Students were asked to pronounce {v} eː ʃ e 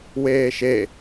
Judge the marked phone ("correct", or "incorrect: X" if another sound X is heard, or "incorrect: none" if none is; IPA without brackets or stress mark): incorrect: w